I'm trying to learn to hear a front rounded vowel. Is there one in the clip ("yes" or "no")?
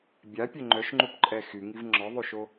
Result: yes